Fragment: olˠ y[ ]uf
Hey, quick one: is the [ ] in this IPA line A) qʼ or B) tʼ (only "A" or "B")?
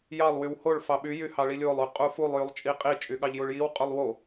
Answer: A